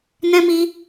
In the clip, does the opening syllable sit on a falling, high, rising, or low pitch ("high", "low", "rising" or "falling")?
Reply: high